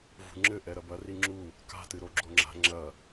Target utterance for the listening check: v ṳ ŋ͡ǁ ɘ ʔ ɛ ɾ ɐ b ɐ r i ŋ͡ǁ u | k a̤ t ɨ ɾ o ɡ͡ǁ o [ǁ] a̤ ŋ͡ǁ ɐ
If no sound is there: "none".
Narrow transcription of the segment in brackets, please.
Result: ŋ͡ǁ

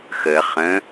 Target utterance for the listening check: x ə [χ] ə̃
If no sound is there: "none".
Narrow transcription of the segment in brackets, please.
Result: χ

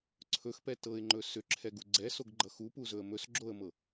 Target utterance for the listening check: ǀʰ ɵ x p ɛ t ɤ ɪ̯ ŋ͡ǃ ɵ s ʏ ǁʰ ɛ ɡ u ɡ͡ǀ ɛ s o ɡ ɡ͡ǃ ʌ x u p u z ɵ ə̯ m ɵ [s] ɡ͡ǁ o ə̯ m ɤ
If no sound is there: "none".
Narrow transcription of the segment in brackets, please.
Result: s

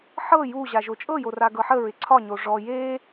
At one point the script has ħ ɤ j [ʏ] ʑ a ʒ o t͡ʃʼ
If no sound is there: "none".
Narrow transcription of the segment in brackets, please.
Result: u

